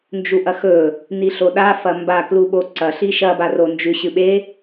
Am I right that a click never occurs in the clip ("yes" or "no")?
no